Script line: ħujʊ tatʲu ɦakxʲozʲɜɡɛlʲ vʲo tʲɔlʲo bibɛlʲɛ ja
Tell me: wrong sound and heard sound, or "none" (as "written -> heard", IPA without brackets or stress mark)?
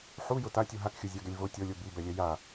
vʲ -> v